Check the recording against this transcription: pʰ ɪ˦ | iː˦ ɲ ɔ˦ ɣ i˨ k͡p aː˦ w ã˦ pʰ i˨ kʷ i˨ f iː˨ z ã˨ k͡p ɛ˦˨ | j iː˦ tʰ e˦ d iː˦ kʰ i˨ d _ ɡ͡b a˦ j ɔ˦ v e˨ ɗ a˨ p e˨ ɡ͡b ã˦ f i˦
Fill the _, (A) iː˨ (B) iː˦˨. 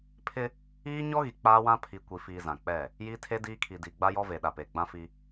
A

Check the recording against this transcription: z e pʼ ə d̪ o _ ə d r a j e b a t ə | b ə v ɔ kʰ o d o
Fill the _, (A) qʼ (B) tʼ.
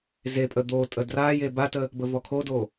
B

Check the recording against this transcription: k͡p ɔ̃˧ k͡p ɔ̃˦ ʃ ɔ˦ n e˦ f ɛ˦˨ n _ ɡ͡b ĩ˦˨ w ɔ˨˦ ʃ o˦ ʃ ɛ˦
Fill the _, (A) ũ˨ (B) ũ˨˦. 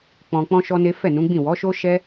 B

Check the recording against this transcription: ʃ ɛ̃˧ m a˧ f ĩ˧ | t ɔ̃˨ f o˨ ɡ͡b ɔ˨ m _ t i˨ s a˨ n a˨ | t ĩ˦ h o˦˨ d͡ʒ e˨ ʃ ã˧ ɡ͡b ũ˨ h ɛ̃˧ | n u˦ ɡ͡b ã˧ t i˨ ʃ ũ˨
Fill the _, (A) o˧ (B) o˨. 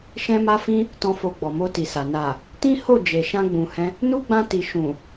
A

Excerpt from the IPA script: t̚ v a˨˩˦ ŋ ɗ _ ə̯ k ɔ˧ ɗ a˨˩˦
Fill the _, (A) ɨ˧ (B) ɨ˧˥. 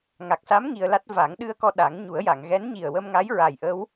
A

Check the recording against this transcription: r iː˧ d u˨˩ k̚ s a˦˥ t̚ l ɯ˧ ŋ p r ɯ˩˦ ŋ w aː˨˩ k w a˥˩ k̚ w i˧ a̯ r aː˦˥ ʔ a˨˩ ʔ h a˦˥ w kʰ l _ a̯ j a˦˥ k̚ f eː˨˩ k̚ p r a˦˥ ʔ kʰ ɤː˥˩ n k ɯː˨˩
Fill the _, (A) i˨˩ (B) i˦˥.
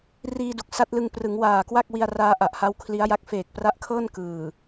B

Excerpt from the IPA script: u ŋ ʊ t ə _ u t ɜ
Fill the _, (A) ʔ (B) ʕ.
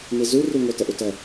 A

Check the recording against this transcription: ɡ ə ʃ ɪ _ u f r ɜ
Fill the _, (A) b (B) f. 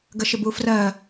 A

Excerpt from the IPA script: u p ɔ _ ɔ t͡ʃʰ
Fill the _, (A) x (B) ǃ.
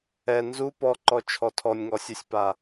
B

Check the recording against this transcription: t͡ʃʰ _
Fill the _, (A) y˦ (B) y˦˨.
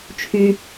A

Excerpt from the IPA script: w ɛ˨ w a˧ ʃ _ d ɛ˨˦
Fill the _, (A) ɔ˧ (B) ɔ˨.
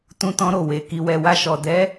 B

